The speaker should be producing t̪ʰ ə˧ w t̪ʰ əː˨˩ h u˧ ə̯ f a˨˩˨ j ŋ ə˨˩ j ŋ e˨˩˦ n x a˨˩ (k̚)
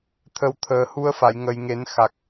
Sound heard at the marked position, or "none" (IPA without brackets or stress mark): k̚